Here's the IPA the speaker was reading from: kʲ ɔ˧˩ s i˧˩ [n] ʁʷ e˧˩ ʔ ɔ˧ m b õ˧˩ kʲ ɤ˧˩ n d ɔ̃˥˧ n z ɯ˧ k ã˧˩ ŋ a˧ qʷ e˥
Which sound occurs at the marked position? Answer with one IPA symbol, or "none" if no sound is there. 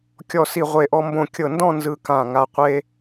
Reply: none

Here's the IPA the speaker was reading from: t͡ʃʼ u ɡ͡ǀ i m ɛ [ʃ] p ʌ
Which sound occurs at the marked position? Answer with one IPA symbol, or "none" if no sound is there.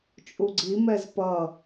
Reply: z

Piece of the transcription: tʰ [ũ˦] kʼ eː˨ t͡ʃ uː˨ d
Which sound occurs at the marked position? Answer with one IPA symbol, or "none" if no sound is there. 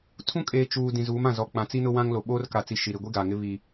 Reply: ũ˦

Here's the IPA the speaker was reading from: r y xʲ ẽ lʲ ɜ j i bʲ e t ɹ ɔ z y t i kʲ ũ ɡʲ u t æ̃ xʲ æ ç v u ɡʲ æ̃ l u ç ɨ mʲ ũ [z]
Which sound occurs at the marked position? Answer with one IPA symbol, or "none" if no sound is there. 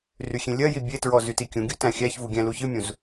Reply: z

